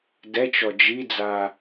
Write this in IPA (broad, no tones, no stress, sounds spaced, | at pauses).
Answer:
d ɛ t͡ʃ ɔ d͡ʒ i d͡z a